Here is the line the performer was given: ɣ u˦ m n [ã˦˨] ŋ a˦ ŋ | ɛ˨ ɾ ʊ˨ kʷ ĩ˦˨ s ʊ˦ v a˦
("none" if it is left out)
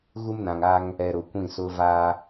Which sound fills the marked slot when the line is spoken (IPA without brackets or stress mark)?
ã˨